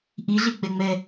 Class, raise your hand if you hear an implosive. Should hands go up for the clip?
no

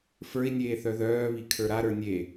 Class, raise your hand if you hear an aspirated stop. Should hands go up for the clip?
yes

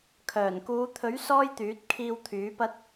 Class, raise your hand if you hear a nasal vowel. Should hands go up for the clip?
no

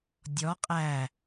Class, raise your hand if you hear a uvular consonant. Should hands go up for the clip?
yes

